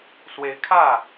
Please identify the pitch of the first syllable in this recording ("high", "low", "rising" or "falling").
rising